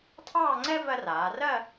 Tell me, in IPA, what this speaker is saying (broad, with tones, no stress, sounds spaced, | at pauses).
tʰ ɑː˥˧ ŋ͡ǀ ɛ˥ v ɜ˥ r aː˩˧ r ɜ˥˧